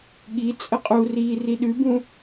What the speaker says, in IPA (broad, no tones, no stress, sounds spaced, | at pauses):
ɠ i t͡sʼ ə qʼ u r iː r i ɗ ʉ b ũ